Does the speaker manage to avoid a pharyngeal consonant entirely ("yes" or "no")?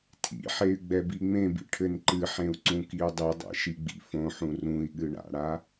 no